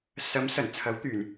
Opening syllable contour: rising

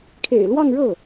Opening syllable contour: low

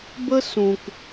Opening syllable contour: high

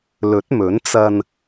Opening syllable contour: rising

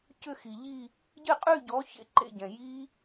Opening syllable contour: falling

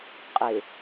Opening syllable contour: low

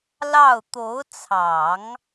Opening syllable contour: falling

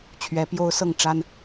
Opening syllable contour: rising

